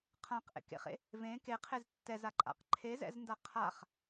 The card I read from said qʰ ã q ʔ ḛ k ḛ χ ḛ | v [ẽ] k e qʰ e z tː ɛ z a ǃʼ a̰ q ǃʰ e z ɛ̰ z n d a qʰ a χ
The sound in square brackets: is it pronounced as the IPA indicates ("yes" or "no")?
yes